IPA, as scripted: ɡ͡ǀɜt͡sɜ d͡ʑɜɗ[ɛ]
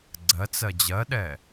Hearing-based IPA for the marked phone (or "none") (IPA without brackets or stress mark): ɛ